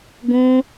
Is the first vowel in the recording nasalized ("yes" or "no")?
yes